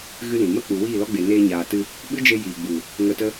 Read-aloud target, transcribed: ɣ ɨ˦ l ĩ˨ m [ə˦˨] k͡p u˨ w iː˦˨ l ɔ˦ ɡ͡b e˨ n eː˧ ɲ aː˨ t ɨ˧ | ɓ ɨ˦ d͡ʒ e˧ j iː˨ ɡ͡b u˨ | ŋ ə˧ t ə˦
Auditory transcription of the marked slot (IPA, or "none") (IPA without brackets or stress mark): ə˦